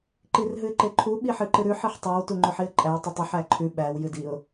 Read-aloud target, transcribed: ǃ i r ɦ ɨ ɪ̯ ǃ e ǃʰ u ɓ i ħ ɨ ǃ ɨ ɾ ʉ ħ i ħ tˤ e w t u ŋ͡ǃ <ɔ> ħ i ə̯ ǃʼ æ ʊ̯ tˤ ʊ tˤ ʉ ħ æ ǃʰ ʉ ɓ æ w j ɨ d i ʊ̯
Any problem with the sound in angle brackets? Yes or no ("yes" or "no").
yes